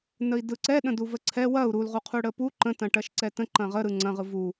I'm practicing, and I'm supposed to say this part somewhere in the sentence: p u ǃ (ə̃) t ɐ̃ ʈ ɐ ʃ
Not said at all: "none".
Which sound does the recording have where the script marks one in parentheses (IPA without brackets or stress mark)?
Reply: ə̃